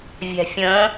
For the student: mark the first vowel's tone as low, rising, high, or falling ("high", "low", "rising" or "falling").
low